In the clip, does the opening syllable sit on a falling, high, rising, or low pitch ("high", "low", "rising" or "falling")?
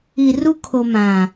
low